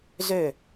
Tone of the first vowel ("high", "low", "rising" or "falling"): falling